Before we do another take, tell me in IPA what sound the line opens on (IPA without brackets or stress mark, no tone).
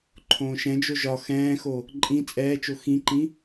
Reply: ǃʰ